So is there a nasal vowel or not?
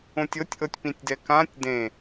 yes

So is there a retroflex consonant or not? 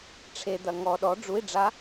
yes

